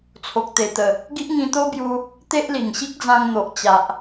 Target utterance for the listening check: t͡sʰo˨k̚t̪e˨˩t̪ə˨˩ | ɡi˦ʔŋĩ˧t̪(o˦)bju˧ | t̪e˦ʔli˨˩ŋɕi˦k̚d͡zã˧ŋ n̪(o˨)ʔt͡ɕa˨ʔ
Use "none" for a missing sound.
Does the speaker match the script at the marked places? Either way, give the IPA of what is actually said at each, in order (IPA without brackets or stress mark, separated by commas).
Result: o˦, o˨